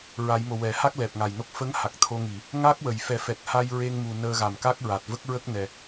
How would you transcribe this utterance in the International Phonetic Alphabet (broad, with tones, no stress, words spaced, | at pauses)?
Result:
ɹa˨˩˦jmo˨˩ wɛ˨˩˨ha˦˥k̚ lɛ˨˩p̚ŋa˨˩jno˦˥k̚ fə˧˥ŋha˨˩k̚ t̪ʰo˧ŋi˨˩˨ | ŋa˦˥k̚ wə˨˩˨jfɛ˨˩˦ fɛ˨˩t̚ha˧j ɹe˧ŋmu˨˩ nəː˧ɣa˨˩mka˦˥k̚ɹa˨˩t̚ və˦˥k̚ɹə˦˥k̚nɛ˨˩